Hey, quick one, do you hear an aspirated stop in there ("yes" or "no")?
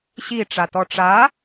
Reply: no